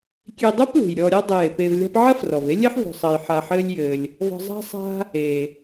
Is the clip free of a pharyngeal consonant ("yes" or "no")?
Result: no